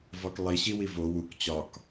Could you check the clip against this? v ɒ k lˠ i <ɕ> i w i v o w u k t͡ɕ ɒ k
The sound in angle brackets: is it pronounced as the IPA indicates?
yes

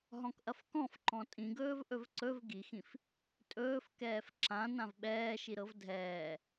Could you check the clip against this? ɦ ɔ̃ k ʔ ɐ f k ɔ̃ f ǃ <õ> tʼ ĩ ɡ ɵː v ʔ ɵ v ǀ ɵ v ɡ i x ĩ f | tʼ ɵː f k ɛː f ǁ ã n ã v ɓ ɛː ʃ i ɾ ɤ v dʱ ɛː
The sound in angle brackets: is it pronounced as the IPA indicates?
no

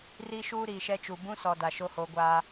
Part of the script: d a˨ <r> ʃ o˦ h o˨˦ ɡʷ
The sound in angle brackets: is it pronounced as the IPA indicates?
no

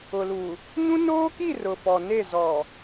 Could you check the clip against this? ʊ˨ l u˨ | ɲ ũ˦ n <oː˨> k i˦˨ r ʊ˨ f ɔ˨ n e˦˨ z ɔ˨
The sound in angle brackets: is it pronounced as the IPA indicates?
no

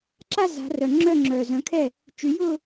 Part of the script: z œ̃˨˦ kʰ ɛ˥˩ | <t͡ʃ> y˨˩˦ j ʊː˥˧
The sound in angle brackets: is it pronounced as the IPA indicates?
yes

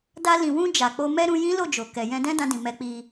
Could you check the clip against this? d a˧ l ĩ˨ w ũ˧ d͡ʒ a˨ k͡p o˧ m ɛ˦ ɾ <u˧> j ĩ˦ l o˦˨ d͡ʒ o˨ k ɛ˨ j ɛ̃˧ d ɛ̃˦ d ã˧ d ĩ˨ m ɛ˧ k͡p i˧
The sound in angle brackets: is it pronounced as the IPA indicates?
no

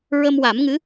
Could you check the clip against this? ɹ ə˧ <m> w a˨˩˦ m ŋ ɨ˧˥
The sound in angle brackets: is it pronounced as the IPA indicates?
yes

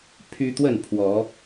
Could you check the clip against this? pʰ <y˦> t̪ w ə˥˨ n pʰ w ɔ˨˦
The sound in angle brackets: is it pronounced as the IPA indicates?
yes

